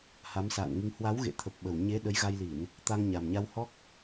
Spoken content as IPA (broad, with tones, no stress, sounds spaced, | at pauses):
h a˨˦ m s a̰ː˧˨ n ŋ i˧ ŋ h w a˨˦ w ɣ ḛ˧˨ t̪ʰ ə˨˩ p̚ ɓ ə˨˩ w ɲ e˨˦ ɗ ə˨˦ j ɣ a˧ j l i˧˩˨ n | t̪ a˧ ŋ ɲ a˨˩ m ɲ a˧ w h ɔ˦˥ k̚